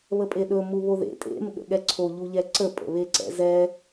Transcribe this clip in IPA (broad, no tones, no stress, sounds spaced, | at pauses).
β ə pʼ e ɗ ɵ m u β o ð ḛ tʼ ḛ m ɠ ə̰ ɠ ɛ ǀʰ o ʎ u ʎ ɛ ǀ ə pʼ ə̰ β e ǀ ɛ̰ z ɛ